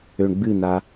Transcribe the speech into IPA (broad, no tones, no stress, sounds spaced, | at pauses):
ø ɳ ɡ͡b ɨ n a